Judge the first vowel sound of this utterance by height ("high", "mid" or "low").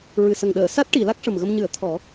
high